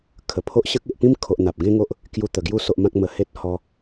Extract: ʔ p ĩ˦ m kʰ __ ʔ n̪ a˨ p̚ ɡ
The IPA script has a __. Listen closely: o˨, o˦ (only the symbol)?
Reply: o˨